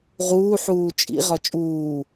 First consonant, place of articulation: uvular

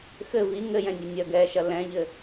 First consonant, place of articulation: velar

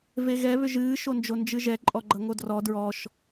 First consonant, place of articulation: labial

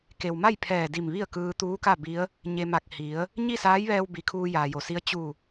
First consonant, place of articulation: velar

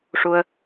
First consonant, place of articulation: retroflex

